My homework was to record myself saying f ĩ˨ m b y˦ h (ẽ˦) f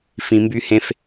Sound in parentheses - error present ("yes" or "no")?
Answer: no